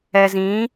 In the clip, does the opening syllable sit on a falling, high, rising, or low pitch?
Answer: low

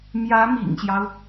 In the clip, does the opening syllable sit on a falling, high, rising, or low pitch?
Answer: rising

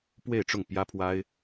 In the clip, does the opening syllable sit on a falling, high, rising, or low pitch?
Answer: falling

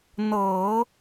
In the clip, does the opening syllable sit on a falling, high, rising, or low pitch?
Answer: low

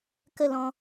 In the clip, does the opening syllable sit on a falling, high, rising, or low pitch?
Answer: falling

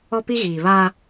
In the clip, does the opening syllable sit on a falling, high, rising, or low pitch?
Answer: high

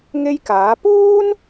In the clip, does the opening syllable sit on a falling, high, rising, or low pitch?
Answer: high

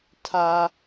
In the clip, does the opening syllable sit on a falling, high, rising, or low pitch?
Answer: high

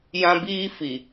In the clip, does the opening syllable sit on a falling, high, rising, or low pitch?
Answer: high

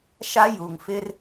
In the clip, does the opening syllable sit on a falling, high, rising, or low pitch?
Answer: high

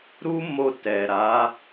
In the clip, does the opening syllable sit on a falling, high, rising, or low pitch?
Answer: high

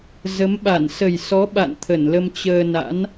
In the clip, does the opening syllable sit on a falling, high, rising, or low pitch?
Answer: rising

